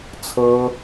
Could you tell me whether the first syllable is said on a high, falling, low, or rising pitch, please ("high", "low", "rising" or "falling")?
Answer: high